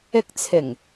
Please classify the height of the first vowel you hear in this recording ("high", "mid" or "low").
high